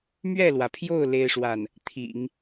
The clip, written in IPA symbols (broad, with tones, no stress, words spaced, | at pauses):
mɥɛ˥˩lwä˩pʰjo˥˩ʊ̯ le˥ɪ̯ʂwa˥˩n | t̪ʰḭ˨˩˦ŋ